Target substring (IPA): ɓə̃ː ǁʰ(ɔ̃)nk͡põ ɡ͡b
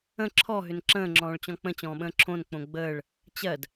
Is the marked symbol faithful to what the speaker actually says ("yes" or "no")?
no